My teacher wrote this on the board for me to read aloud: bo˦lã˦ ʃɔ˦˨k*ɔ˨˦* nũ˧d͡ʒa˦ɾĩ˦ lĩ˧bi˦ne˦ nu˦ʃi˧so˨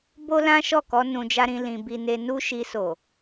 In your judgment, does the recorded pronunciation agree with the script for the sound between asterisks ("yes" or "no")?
no